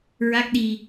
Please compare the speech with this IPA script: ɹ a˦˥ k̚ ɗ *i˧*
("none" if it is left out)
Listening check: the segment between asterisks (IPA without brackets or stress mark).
i˧